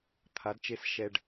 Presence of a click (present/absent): absent